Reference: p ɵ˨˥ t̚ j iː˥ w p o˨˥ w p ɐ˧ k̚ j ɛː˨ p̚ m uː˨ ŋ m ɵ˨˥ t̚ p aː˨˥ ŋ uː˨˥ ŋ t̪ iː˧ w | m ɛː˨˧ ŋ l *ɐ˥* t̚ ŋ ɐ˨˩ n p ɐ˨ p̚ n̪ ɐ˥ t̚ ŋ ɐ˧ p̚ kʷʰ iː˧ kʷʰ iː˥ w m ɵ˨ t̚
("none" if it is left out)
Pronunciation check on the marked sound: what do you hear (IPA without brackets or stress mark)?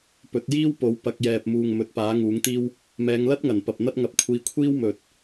ɐ˥